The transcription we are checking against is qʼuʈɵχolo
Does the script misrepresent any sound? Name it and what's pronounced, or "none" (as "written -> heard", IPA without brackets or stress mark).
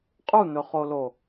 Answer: ʈ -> n̪